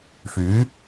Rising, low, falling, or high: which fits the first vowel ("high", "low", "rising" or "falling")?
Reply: rising